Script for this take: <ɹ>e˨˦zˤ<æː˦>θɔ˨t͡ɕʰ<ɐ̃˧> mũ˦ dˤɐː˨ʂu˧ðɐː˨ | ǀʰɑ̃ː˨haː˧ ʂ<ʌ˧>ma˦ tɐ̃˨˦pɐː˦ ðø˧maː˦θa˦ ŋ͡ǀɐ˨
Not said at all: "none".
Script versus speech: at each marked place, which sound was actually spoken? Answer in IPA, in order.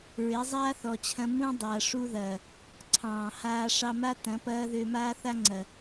ɹ, aː˦, ɐ̃˧, ɑ˧

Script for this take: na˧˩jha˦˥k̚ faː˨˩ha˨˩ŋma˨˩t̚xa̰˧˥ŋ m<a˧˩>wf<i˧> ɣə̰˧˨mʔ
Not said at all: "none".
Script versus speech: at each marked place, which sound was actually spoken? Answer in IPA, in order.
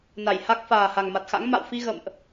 a̰˧˨, i˧

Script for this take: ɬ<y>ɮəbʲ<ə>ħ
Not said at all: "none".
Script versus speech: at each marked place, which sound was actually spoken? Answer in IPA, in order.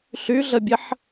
y, ə

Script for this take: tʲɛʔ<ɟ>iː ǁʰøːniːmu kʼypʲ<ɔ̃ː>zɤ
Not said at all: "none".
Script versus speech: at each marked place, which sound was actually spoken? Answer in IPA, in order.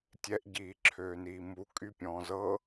ɟ, ɔ̃ː

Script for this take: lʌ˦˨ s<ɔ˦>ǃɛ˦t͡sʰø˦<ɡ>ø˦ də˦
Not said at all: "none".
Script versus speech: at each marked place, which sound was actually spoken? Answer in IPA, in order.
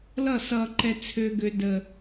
ʌ˦, ɡ

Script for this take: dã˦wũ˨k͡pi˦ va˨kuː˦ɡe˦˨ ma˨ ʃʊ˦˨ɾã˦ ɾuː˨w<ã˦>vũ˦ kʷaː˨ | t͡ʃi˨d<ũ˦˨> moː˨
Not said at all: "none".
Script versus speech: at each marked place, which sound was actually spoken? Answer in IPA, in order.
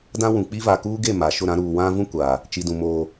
ã˦, ũ˨

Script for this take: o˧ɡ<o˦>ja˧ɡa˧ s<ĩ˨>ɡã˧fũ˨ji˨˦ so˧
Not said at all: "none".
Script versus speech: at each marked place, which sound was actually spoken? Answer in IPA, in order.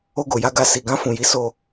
o˨, i˨

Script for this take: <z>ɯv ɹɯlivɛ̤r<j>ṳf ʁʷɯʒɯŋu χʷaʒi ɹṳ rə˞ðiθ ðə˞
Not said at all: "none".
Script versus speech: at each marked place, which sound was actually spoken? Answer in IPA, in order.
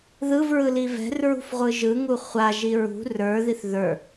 ð, ɹ

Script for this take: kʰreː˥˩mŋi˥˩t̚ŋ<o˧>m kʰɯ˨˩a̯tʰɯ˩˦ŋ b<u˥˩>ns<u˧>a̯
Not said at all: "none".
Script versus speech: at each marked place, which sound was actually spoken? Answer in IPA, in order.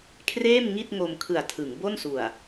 o˧, o˥˩, u˨˩

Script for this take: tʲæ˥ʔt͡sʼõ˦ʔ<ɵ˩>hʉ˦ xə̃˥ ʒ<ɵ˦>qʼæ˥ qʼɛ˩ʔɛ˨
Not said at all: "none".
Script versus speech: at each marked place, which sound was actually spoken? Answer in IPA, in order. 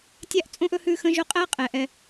ɵ˥, ɵ˦

